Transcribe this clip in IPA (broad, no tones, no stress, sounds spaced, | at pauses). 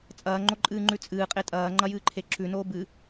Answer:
t͡sʼ ɐː ŋ͡ǃ o ǃʼ ɨː ŋ͡ǃ ʉ t͡sʼ ɨː qʼ e tʼ ɐː ŋ͡ǃ ɐ j ɨː ǃʰ e ǁ ʉ n oː b ɨ